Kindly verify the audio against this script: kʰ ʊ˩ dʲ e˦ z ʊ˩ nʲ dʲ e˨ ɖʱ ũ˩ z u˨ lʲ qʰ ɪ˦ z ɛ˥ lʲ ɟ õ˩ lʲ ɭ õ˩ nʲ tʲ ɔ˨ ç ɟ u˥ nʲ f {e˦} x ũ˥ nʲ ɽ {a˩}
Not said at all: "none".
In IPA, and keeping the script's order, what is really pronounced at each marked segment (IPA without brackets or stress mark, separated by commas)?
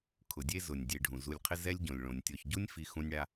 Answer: i˦, a˥